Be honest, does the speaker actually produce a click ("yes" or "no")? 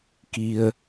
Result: no